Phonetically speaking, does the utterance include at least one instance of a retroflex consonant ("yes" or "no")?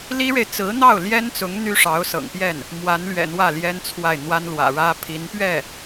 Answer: yes